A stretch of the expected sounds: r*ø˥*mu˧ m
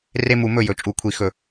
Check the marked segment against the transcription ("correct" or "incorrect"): incorrect